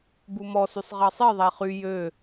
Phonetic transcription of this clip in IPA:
bumɔsysˤ ʁɑsˤeðˤæ χy jø

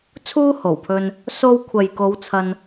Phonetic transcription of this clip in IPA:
t͡sʰuː˥ho˨˩wpʰɵ˧n | so˧wkʷʰɐ˨jko˨˧w t͡sʰɐ˧n

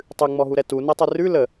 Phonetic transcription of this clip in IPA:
tˤʉŋ͡mɔɦuɾɛ tunɛtˤɨ rʉ lə

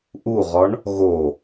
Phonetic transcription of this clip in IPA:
ʔuʁɔɳ | ɣo

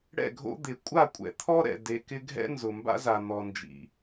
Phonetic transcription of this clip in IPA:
ɽɛ̰˦˨ɡʱo̰˦ d̪ɪ˨ kʷʼa˦˨kʷʼɛ̰˨t̪ʰɔ˦ɾɛ̰˨ de˨kɪ˦ ɡʱɛ̰˦ nzʊ˨mba̰˦za˨ n̪ɔ˨nd͡ʒḭ˨

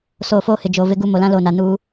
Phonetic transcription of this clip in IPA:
so˨ foː˦hɪ˨ d͡ʒo˨vɪ˦ɡu˦ mo˨lã˦ lo˨na˨nu˦

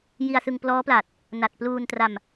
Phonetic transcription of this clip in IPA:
ji˧a̯sɯ˧ŋ plɔː˦˥pla˨˩t̚ | na˨˩t̚pluː˧ntra˧m

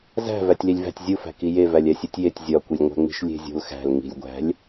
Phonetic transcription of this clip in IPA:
zæ̤ vætʲlilʲvæ̤tʲ zʲufæ̤ki jevælʲ æsʲutʲjetʲ zʲɒkʷilʲŋʷæ̤ŋ͡mi̤ʃ lʲe̤zʲo̤lxæ̤l ŋi̤lʲɡʷæ̤lʲ

